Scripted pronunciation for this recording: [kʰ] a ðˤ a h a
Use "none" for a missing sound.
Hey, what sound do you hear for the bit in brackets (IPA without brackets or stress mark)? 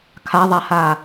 kʰ